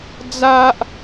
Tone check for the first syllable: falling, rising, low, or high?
high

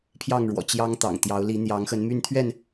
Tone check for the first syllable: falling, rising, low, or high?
falling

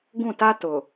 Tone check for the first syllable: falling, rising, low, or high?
falling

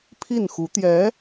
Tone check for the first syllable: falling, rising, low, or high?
falling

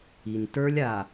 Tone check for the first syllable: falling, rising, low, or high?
low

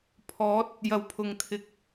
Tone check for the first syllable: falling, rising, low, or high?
rising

